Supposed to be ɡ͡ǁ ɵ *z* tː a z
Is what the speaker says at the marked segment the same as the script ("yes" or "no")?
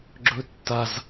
no